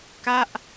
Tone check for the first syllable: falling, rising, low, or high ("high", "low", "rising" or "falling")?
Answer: falling